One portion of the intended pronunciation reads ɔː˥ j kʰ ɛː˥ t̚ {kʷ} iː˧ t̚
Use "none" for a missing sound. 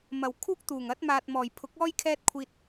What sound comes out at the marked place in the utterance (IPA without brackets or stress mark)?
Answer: kʷʰ